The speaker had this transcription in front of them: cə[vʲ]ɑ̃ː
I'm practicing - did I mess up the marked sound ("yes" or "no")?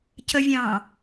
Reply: no